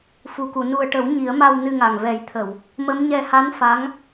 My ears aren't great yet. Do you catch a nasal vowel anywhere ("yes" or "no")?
no